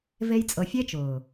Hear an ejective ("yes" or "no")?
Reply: yes